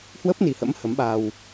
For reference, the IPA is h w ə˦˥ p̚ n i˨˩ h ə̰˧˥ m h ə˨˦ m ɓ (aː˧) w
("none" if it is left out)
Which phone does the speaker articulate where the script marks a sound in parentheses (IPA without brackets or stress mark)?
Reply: aː˧